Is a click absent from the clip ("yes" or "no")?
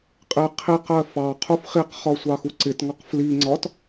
no